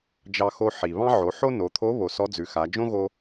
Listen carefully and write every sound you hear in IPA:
d͡ʒ ɑ˧ x o˧ ħ i˩ β ɑ̃˥ ʕ o˩˧ ħ o˥ n o˩˧ t̪ʰ o˧˥ β o˩˧ s ɔ˧˥ d͡z ʉ˩˧ x a˩˧ d͡ʒ õ˥ ɣ o˧

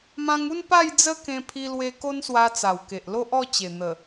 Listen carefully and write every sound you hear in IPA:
m ã˧ ŋ u˥˧ n p a˥˧ j d͡z ə˦ k ẽ˧ pʰ i˧ l w e˧ k o˦ n s w a˧ t͡s a˨˩ w k e˨ ʔ l o˦ ʔ ɔ˥˧ t͡ɕ e˨˩ n̪ ə˨˩

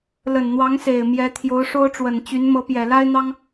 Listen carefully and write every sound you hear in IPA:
l ə˨˩ n n̪ w ɑ˧˥ ŋ s e˨˩ ɪ̯ m j ɛ˧˥ t̪ʰ j o˧˥ ʊ̯ ʂ o˥ ʊ̯ ʈ͡ʂ w ə˨˩ n t͡ɕ y˧˥ n m ɤ˧˥ p j ɛ˨˩ l a˥ ɪ̯ n̪ ɑ˥ ŋ

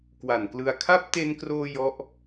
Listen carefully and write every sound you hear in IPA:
k w a˨˩ n k l ɯ˧ a̯ kʰ a˦˥ p̚ t e˧ n k r oː˧ j ɔ˦˥ ʔ

